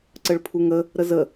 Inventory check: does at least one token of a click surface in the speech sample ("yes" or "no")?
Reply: yes